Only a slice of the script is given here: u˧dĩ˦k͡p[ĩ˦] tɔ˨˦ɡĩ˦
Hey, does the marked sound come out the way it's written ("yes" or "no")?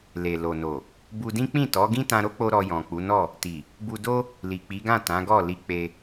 no